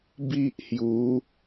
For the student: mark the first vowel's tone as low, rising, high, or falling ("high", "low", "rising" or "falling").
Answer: high